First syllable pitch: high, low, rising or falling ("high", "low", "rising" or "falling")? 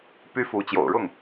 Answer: high